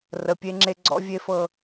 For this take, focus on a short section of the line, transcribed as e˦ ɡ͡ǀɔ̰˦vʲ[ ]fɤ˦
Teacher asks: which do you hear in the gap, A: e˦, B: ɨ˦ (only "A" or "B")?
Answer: A